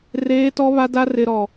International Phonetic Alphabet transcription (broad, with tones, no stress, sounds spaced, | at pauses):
r eː˦ t ɔ˦ β a˦ d a˦ r ɪ˦ ɾ ɔ˦